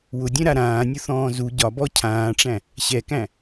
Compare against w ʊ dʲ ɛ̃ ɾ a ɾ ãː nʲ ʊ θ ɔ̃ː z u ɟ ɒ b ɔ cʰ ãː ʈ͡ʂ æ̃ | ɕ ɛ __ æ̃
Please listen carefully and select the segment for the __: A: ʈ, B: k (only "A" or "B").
B